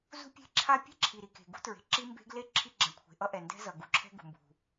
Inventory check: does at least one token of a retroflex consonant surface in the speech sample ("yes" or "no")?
no